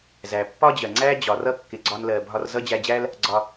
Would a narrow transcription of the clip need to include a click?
yes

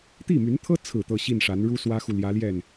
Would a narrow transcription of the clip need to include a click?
no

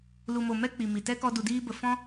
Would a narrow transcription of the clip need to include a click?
no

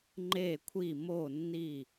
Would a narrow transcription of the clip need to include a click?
yes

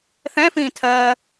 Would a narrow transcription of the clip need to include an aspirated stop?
yes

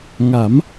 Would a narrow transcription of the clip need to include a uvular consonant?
no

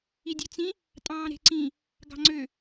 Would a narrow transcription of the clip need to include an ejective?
yes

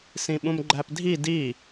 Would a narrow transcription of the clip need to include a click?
yes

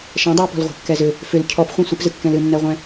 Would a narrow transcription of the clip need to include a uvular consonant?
yes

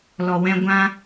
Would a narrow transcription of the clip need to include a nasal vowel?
yes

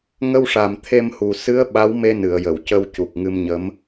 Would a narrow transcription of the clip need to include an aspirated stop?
yes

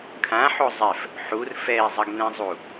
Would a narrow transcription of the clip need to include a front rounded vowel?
no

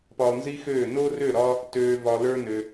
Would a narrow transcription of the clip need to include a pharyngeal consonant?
no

